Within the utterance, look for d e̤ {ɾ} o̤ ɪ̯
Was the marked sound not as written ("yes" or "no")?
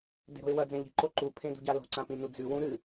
no